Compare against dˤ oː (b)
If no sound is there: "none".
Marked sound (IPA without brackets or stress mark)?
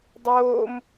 m